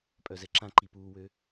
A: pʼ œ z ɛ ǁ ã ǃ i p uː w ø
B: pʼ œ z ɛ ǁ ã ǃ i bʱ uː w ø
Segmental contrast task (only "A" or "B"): A